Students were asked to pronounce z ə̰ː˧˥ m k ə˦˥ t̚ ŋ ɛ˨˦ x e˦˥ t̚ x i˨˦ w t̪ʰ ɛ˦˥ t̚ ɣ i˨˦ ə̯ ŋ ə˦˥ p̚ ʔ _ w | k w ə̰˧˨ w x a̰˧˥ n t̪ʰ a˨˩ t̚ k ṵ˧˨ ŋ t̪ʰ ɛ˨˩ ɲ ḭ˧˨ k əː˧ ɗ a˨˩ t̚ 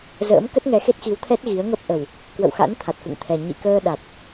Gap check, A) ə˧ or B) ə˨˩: B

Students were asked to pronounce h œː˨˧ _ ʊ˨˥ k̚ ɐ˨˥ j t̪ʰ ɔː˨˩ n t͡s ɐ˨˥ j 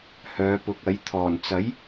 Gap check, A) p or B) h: A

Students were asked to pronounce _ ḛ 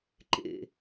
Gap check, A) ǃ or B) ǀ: A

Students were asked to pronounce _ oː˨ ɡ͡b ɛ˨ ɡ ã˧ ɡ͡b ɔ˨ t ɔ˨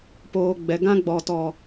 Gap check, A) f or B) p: B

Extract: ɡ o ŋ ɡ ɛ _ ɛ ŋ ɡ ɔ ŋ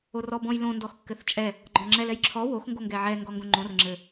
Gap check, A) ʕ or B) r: A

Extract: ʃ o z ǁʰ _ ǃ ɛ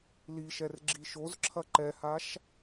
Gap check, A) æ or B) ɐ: B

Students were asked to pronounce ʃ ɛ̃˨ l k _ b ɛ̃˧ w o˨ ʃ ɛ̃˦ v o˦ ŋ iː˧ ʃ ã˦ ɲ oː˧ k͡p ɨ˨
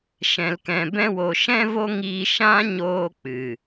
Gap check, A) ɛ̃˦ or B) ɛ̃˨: B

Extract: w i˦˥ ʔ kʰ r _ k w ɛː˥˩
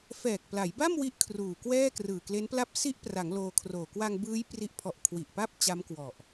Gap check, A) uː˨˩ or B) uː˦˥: A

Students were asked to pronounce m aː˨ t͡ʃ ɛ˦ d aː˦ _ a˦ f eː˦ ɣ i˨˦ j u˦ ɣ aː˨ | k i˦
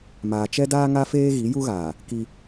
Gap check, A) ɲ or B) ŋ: B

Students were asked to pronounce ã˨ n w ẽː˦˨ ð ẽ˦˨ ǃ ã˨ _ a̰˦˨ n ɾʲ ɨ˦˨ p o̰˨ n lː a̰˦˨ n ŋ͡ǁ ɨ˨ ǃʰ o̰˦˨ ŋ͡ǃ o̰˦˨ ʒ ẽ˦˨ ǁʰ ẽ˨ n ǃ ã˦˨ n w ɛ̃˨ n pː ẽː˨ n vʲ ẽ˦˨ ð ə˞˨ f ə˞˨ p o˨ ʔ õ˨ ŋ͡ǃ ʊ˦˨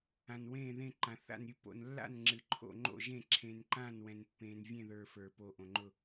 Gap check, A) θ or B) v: A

